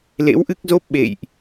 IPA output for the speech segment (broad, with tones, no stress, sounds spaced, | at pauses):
l ḛ˧˥ w ʔ ɨ˦˥ k̚ z o˦˥ p̚ ɓ ḛ˧˨ j ʔ